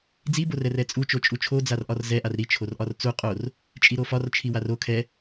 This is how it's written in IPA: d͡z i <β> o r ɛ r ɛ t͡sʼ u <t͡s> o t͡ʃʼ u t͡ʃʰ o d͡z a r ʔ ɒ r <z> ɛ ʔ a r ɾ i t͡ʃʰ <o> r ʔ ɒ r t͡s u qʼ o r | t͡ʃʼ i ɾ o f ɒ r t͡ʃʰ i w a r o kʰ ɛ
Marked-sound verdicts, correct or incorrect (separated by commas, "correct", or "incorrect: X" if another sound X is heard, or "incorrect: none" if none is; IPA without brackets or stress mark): incorrect: b, incorrect: t͡ʃ, correct, correct